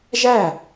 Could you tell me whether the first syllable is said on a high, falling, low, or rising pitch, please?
falling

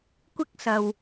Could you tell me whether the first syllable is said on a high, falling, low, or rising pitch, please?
high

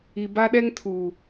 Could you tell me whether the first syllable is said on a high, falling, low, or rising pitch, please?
low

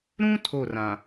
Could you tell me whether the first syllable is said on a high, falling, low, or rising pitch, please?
high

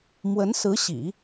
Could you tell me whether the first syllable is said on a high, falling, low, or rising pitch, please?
rising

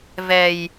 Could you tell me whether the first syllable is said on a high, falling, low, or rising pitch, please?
low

